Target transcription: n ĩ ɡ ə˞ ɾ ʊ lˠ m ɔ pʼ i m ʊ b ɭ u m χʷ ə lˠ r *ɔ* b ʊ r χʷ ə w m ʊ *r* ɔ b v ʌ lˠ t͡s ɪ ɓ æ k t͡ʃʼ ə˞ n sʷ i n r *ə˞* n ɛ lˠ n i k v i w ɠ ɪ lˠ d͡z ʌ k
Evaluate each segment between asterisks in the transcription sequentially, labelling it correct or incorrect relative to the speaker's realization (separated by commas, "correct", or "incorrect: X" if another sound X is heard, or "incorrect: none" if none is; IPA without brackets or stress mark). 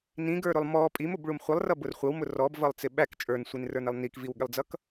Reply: incorrect: ʌ, correct, correct